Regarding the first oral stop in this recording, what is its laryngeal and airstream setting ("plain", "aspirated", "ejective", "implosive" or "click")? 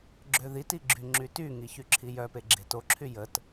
click